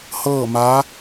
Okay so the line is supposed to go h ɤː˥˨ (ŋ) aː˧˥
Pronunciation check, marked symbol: incorrect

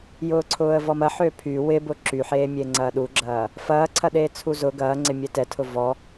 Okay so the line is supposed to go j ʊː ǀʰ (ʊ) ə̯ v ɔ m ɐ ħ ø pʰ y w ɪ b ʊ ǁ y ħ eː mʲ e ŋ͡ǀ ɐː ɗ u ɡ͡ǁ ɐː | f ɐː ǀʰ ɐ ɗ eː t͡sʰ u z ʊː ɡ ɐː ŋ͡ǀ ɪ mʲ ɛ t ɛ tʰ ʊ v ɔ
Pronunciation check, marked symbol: incorrect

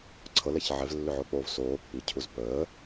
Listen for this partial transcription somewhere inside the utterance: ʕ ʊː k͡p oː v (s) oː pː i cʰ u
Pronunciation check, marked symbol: correct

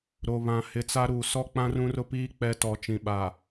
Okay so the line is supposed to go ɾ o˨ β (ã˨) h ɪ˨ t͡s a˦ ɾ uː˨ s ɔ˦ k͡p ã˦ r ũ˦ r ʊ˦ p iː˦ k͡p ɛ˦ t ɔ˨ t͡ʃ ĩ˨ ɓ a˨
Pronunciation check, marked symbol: correct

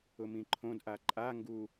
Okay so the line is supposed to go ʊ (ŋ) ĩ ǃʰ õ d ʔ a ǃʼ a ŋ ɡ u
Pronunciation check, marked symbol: incorrect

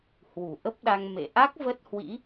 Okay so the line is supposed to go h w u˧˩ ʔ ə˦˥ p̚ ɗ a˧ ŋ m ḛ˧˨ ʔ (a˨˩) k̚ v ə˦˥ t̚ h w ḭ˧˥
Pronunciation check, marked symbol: incorrect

